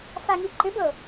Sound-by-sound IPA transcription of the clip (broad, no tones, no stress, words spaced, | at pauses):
faŋiǃʏbɤ